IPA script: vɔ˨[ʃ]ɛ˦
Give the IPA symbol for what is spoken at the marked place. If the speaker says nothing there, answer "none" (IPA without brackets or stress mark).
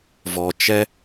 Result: t͡ʃ